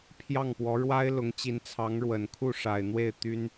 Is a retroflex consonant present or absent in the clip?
present